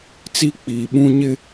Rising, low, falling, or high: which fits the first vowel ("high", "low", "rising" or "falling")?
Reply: high